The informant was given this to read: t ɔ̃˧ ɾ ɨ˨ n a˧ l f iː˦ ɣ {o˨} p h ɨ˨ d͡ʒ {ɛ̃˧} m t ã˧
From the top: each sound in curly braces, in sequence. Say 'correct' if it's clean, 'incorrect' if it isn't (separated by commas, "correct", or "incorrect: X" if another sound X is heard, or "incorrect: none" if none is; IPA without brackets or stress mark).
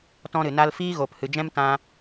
correct, incorrect: ɛ̃˦